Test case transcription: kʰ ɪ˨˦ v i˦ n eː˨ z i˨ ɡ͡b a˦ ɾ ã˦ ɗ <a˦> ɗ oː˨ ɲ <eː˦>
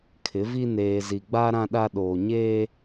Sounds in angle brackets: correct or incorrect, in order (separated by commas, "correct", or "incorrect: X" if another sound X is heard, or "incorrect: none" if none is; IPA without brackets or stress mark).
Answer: correct, correct